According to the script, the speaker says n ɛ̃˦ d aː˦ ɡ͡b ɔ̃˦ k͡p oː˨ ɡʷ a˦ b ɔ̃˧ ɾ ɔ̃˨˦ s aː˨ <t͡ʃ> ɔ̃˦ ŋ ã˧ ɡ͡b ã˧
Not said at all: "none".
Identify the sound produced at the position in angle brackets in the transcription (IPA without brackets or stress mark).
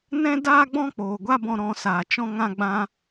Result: t͡ʃ